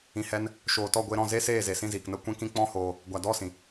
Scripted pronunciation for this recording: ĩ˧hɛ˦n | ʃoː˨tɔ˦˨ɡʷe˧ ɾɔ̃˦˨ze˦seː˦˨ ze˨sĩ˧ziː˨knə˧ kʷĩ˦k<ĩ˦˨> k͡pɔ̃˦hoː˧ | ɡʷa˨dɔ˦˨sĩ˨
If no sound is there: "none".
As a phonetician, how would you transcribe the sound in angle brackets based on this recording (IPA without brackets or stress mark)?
ĩ˦